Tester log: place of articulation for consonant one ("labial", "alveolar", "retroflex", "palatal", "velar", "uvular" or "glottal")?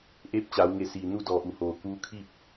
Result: glottal